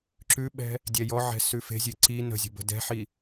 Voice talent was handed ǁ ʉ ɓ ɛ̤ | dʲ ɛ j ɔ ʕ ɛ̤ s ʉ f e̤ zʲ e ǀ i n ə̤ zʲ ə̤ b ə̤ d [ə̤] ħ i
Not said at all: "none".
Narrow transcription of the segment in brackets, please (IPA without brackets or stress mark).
ɛ̤